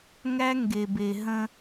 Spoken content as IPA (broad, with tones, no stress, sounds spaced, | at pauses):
ŋ æ˦ ŋ ɡ e˨ b e˨ ɦ ə̃˦